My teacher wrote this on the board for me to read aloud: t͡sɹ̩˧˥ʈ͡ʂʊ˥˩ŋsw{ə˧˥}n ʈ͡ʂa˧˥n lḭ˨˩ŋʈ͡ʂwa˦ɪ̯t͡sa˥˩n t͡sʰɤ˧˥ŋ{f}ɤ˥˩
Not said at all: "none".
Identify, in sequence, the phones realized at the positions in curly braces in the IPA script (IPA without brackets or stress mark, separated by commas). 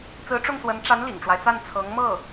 ə˧˥, m